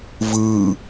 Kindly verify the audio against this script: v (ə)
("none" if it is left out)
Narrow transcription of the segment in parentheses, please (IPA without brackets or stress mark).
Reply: ɯ